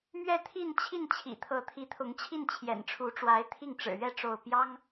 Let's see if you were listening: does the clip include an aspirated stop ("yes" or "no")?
yes